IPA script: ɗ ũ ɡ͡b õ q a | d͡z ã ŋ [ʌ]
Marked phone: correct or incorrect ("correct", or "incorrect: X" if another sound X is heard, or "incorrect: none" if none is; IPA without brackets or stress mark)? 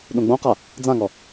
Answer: incorrect: ɔ